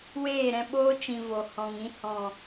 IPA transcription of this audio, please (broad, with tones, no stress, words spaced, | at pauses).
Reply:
weː˦˨ɾɛ̃˧ɓoː˦ t͡ʃĩ˧vo˨ hɔ̃˨ŋĩ˧ hɔ̃˨